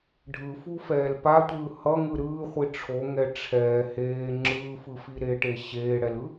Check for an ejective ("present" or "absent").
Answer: absent